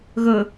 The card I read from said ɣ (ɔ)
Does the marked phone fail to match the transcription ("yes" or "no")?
yes